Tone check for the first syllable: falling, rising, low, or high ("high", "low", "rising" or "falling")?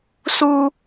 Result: high